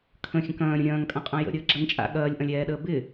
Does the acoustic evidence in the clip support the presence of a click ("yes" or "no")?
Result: yes